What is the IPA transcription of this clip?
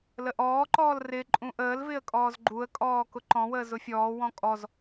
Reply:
l ə ʔ ɔː ǃ ɔː l r ɪ ǃʼ ũ ʔ əː l v ɪ ə̯ kʼ ɔː z ɡ͡ǃ u ə̯ kʼ ɔː k ʊ ǃ ɔ̃ w əː z ʊ fʲ ɔː w ɔ̃ kʼ ɔ z

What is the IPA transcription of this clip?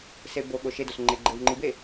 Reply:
s e b o ɠ o ʃ e d o s ŋ͡ǃ e ɡ͡ǃ e w ŋ͡ǃ i b e

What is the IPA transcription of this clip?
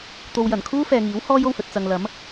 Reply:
t̪ o˨ w j ɐ˨˩ n kʰ uː˥ f ɛː˨ ŋ iː˨˥ w h ɔː˥ j o˧ w h ɵ˨ t̚ t͡s ɐ˨ ŋ l ɐ˨˥ m

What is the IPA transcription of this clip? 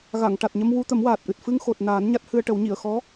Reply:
ɣ a˨˩˨ ŋ ʈ a˨˩ t̚ ɲ ə˧ m w u˧ t̪ ə˨˩˦ m w aː˨˩ t̚ ʔ ɨ˨˩ t̚ f ɨ˧ ŋ x o˨˩ t̚ n aː˨˩˦ n ɲ a˦˥ t̚ h ɨ˧ ə̯ ʈ ə˨˩˦ w ɲ i˨˩˨ ə̯ x ɔ˧˥

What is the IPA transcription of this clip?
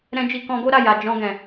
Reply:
ɾ ɛ̃˧ d͡ʒ i˧ k ɔ̃˧ ɡ o˦ ɾ a˦˨ j a˨ d͡ʒ ɔ̃˧ ɡ ɛ̃˨

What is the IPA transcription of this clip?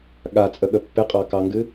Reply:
ɠ a t͡sʼ ə ɠ ə pː ɪ qʼ ɑ k ɑ ŋ ɡ ɨ

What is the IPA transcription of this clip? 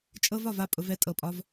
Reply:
t͡ʃʼ ɤ˧ v ɒ˨ v a˦˨ pʼ ʊ˧ v ɛ˧ tʼ ɤ˨ pʼ ɒ˧ v

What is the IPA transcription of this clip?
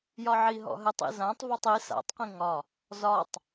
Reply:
j ɒ ʕ i ɦ ɔ̰ ɦ ɘ tˤ ḭ z ã tˤ v ɔ tˤ i s a̰ tˤ q ĩ ŋ ɒ | z ɒ tˤ

